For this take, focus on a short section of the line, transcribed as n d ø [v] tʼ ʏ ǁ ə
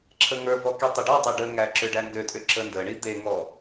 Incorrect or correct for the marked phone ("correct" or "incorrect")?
incorrect